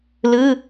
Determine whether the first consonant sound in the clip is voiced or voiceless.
voiced